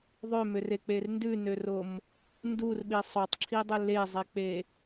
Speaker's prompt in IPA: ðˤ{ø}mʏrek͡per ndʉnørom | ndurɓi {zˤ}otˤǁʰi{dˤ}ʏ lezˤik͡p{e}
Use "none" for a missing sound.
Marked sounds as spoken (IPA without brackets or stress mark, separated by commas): ø, sˤ, dˤ, e